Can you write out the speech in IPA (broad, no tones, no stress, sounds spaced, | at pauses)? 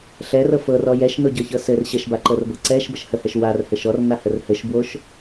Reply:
ɬ ɛ r ɤ f ɤ r ɔ j ɛ ʃ n o ɟ ɤ ç ɤ s ɘ r ɕ ə ʃ b a ǃ ɤ r b ɤ ǀ ɛ ʃ b ə ʃ h ə h ɛ ʃ w a r h ɘ ʃ ɔ r n a h ə r h ɘ ʃ b w o ʃ